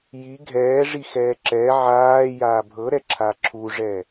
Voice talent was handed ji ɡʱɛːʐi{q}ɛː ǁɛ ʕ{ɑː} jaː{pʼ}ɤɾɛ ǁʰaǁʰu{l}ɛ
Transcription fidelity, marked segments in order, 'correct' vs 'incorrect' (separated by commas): incorrect, incorrect, incorrect, incorrect